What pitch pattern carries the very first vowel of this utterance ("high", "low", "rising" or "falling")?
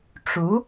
rising